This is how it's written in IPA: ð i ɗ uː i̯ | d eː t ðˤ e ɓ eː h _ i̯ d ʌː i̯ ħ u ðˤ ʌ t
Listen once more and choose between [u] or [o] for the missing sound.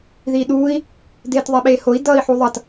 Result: o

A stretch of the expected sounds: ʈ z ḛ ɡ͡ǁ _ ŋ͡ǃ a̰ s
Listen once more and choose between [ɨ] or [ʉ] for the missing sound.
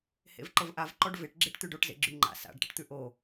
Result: ʉ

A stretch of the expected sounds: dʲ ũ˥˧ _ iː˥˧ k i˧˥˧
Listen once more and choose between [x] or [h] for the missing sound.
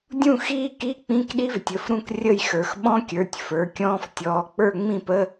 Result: x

